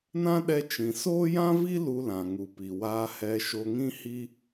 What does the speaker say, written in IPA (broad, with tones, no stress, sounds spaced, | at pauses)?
n ã˦ ɗ ɛ˧ t͡ʃ ĩ˨ s oː˦ j ã˦ v i˦ l u˧ l ã˨ ŋ u˨ p i˨ w aː˧ h ɛ˧ ʃ o˧ ŋ ĩ˦ h i˦